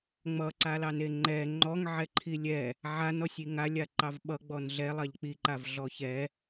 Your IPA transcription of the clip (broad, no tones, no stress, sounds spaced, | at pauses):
ŋ͡m ʌ ǀ a l ɑ n e ŋ͡ǃ ɛ ŋ͡ǃ ɔ ŋ ʕ ɛ ǃʰ i lʲ ɛ | ʕ a n ɔ sʲ i ŋ a lʲ a ǃ ɑ v ɓ ʌ ɡ͡b ɔ n ɮ ɛ lˠ ɑ ʎ k͡p i ǃ a v ɮ ɔ ç ɛ